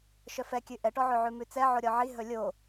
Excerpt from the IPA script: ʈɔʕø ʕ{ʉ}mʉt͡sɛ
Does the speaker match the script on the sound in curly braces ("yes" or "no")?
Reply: yes